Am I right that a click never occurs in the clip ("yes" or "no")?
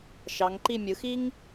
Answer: no